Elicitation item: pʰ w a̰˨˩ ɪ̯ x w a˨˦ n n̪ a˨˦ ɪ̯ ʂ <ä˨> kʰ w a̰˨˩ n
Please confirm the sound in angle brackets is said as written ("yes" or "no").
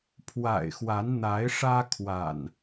no